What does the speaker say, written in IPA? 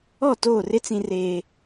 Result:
ɔ˦˨toː˦˨rɪ˦ t͡sĩ˦reː˦

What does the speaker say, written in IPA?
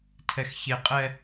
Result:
tʰɛxçeqʼɛ

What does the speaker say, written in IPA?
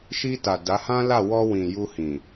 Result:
ʃi˧ ta˨da˨˦hã˦la˦˨ wɔ˧ wĩ˨ ju˧hĩ˨

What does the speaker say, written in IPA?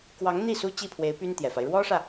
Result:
kwɑ˧˥ŋn̪i˥˩ su˥ t͡ɕi˥˩pʰwe˧˥ɪ̯ py˥nt̪jɛ˨˩fa˦ɪ̯ ɻwɔ˥ʂä˨

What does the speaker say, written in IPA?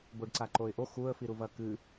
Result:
boɖǀaǃoɪ̯ʔo xuə̯fiɾuvɐ kɨ

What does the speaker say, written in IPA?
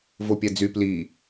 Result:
vopʲæd͡zy pli

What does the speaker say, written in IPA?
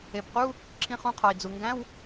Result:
e˩bqu˧˥˧ | ǁʰĩ˧χũ˧qʰɒ˩i̯d͡zu˩ ŋɡæ̃˧˥˧w

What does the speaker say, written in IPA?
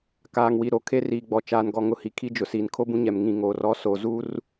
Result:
kaː˨ŋwi˨ ɾo˨ kʰe˦riː˨ɡ͡bɔ˨ t͡ʃaː˨nɡɔ˨ŋʊ˨hi˨ kʰi˦d͡ʒʊ˨ siː˨nkʰo˦bũ˦ɲɛ˨m ŋĩ˨ ŋoː˨r ɔ˨˦so˨ zu˦r

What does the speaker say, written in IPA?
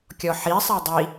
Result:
kʲɔħisˤe dˤi

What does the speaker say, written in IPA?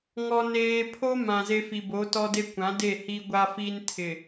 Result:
ŋɔ˨neː˨pʰo˦ mã˨ze˦fi˨ bo˨˦tɔ˦de˦ kʷã˨˦de˦˨ hi˦ɡʷa˦ fi˦ntʰɪ˨

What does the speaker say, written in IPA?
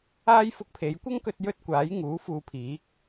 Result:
aː˥jfʊ˧k̚ pʰe˨˧jkʷɐ˥ŋkɵ˧t̚ jɵ˥t̚ kʷaː˨˥j ŋuː˨˥ fuː˧pʰiː˨˥k̚

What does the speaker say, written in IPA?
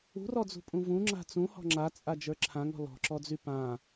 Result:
ṳrɔd͡zṳpʼũ vũŋ͡ǁa̤ t͡sũhɔ̤ ŋ͡ǁat͡sʼad͡ʒə˞ ǁʰãŋɔ̤ lɔ̤ǁɔd͡zy pã

